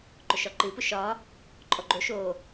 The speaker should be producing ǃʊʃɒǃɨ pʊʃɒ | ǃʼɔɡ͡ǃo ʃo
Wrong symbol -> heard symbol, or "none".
none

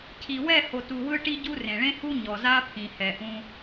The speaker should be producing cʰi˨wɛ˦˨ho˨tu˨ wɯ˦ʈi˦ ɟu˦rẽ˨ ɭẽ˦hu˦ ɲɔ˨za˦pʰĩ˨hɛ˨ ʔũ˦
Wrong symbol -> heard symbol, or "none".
none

